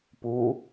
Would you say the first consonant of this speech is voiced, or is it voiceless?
voiceless